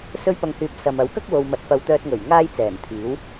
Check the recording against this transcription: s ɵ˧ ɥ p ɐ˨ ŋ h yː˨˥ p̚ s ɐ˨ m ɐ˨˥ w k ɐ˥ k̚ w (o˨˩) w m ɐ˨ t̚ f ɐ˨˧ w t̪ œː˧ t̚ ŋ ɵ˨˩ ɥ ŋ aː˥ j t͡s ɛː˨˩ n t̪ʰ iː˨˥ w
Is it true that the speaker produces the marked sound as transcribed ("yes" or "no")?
no